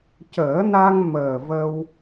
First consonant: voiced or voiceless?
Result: voiceless